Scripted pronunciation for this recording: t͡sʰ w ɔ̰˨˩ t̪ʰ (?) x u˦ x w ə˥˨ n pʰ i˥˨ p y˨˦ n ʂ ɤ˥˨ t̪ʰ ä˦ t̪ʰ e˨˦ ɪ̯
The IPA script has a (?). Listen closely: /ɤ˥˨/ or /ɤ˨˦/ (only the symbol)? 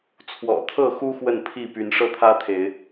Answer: ɤ˥˨